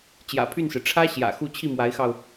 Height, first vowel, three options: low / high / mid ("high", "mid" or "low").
low